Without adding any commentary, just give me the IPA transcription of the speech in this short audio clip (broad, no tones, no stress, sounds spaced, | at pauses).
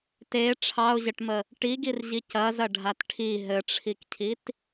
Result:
t e ʈ͡ʂʰ ɑ ʊ̯ ʑ ɘ ʈ m ə | ʈ i ɡ i r ʑ i c ɐ z ɐ ɖʱ a t ʈʰ i ɦ ɘ ʈ͡ʂʰ i k cʰ i t